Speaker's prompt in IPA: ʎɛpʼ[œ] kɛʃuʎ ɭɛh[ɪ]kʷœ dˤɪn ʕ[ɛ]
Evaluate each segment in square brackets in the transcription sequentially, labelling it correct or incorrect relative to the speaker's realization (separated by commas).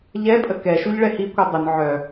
incorrect, incorrect, incorrect